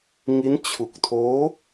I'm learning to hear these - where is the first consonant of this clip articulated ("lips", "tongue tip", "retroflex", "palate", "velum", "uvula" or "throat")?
velum